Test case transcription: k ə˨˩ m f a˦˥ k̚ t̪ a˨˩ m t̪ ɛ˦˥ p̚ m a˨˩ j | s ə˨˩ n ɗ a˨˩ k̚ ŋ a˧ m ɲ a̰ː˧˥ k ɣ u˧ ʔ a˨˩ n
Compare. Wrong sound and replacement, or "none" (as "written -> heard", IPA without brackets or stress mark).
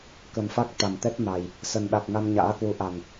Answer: ɣ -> w